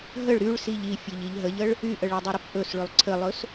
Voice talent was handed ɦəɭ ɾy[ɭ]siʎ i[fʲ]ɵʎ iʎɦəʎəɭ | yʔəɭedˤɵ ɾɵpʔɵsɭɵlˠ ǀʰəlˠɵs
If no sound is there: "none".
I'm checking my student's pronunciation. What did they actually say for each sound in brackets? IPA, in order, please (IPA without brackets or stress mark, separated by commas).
ɭ, fʲ